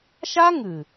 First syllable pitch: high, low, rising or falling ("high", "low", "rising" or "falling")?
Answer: high